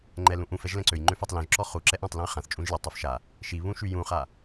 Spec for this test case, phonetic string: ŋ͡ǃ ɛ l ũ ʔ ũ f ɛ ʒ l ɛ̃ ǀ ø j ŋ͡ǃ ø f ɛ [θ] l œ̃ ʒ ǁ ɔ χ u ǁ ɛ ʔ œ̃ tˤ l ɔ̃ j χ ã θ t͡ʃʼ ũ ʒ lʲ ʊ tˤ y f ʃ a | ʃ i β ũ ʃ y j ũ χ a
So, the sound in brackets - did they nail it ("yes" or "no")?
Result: no